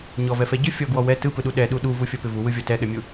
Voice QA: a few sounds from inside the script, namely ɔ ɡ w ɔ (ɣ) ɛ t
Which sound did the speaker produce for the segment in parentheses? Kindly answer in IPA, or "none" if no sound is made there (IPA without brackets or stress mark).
w